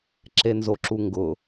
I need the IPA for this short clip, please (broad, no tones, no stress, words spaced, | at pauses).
ǁenzoǁuŋɡʊ